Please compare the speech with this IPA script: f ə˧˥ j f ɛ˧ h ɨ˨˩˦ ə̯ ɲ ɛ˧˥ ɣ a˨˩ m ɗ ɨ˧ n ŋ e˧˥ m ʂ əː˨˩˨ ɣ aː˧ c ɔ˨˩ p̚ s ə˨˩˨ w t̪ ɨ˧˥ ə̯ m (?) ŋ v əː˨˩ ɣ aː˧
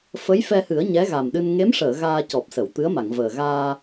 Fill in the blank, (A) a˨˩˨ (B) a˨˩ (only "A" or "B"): A